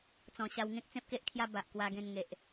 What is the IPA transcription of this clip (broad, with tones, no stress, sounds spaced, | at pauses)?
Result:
t͡s ɔ̃˨˩ ɕ a˧ w ŋ ẽ˦ k̚ t͡s ẽ˦ p̚ k e˦ ʔ kʰ j a˦ b a˨ ʔ k w a˧ ɡ ẽ˧ n ŋ e˨ ʔ